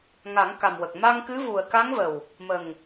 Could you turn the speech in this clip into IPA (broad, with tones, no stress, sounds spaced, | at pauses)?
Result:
ŋ a˨˩˦ ŋ k a˨˩ m w ə˨˩ k̚ m a˧ ŋ k ɨ˧˥ v u˨˩ ə̯ k a˧˥ ŋ v ə˨˩ w | m ə˨˩ ŋ